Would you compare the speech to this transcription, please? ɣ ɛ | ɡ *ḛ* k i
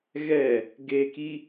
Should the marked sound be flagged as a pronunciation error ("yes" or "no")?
yes